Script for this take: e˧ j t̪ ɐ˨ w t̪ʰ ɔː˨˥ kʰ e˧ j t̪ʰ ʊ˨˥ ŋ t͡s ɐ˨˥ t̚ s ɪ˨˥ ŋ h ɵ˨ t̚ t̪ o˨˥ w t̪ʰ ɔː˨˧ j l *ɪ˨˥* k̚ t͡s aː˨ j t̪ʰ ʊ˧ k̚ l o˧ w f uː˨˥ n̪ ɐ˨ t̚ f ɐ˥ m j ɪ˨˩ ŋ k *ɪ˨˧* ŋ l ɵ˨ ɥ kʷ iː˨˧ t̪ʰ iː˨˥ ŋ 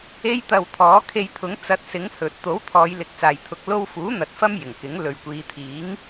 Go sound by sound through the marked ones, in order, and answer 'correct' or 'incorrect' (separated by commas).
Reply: correct, incorrect